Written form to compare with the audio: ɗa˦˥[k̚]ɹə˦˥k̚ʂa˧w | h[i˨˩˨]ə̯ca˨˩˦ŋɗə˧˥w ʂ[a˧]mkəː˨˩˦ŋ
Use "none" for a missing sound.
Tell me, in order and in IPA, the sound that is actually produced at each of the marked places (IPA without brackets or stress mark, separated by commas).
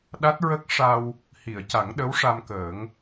t̚, i˨˩˨, a˧